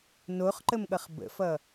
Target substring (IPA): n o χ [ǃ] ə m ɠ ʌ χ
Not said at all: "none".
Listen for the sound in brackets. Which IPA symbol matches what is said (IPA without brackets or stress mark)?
ǃ